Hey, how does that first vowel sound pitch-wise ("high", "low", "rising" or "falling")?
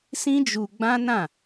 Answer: high